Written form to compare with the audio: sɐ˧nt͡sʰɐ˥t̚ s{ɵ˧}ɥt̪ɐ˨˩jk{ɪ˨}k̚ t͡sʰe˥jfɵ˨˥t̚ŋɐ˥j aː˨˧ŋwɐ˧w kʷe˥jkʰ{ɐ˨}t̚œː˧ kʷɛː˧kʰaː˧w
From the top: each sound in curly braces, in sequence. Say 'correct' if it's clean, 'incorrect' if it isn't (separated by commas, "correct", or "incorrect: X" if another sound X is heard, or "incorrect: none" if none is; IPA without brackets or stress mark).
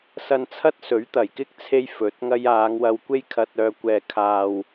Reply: incorrect: ɵ˨˥, incorrect: ɪ˥, incorrect: ɐ˧